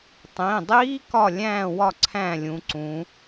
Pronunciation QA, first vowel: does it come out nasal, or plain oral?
nasal